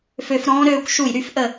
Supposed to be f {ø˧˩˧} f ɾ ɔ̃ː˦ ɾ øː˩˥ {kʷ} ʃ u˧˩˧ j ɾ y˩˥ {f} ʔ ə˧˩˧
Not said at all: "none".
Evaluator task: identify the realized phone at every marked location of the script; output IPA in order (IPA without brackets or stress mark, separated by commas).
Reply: ø˧˩˧, kʷ, f